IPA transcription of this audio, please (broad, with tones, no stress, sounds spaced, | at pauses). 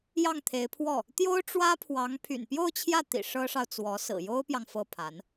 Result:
j ɑ˥˩ ŋ t̪ʰ e˧˥ ɪ̯ pʰ w ɔ˥˩ | t̪ j o˥ ʊ̯ ʈ͡ʂ w ä˥ pʰ w ɑ˧˥ ŋ pʰ y̰˨˩ n p j o˥˧ ʊ̯ t͡ɕʰ j ä˥˩ t̪ ḭ˨˩ ʂ ɤ˥ ʂ ɑ˨ ʊ̯ t͡s w ɔ˧˥ s ɹ̩˨˩ j o˥ ʊ̯ p j ɑ˨ ŋ f ɤ˥˩ pʰ a˧˥ n